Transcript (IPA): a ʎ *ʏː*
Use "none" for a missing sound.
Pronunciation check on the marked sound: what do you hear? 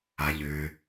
ʏː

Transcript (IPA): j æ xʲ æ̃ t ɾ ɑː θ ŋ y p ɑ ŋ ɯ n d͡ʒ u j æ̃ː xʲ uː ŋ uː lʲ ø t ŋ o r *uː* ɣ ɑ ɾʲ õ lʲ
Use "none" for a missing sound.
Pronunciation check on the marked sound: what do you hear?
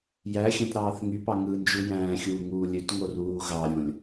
uː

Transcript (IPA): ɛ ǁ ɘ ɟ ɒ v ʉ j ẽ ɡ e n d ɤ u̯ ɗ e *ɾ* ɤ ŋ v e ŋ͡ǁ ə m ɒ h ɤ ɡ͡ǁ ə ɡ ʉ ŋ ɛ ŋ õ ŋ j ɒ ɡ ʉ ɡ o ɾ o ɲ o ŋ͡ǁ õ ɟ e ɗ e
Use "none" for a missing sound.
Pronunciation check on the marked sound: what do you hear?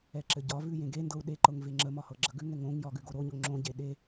ǃ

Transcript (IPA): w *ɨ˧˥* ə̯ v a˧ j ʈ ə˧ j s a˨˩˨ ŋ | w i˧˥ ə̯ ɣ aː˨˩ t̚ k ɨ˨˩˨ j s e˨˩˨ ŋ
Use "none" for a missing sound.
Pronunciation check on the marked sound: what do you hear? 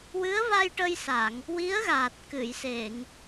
ɨ˧˥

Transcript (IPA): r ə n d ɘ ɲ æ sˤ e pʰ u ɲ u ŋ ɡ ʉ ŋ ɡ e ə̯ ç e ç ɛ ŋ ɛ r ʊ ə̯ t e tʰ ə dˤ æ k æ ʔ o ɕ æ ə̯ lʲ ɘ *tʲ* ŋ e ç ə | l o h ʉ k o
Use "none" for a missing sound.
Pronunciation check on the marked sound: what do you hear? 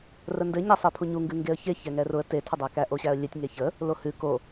tʲ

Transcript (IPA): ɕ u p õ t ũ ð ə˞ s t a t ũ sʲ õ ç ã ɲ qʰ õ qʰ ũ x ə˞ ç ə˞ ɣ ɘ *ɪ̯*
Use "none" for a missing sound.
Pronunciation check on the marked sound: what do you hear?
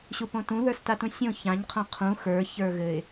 ɪ̯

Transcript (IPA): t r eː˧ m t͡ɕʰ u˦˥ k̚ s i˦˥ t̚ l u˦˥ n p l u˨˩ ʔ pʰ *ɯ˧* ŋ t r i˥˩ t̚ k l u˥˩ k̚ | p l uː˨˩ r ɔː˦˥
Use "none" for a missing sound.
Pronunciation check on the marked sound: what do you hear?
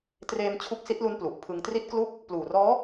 ɯ˧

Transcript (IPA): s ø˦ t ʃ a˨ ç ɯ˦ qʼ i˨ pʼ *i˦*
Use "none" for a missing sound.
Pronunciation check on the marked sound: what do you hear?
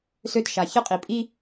i˦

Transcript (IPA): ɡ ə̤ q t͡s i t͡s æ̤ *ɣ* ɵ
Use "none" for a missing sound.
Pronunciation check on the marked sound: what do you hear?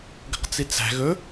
ɣ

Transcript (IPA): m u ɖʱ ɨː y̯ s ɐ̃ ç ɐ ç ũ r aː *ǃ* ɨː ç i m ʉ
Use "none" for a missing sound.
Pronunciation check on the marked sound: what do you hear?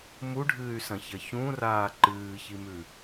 ǃ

